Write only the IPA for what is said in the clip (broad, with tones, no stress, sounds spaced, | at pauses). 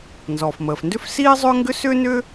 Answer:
n z ɔː˩ f m əː˩ f n d ʏ˥ f s iː˥ zˤ ʏː˥ ŋ ɡ ʏ˥ s ʏː˥ n ʏ˥